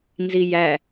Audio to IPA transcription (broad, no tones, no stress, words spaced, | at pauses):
nzijæ